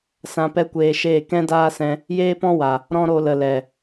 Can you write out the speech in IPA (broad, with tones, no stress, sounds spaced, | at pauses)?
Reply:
s ã˧ p ɛ˦ kʷ eː˧ ʃ eː˦˨ k ɛ̃˦ d aː˦ s ɛ̃˧ | j eː˦ p ɔ̃˦ w a˨ | ɾ ɔ̃˦ ɾ o˧ l ə˨ l ɛ˨